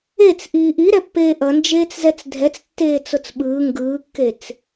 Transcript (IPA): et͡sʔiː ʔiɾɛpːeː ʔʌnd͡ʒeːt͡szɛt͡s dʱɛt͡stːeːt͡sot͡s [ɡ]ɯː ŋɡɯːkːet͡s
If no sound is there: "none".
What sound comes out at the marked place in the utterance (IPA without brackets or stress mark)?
ɓ